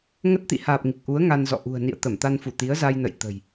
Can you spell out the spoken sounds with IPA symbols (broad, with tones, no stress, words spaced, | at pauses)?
ŋə˦˥t̚t̪ḭ˧˨haː˨˩p̚ ŋi˨˩k̚ʔu˨˦ə̯ ŋa˧nzɔ̰˧˨ ʔṳ˨˩ə̯nḭ˧˨ə̯ t̪ə˧˩mt̪a˧nfu˧˩ t̪i˨˦ə̯za˧jnə̰˧˨jt̪ə̤˨˩j